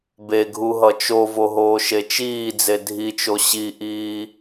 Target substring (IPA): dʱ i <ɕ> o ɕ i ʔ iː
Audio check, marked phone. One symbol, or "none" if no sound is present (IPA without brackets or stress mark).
t͡ʃ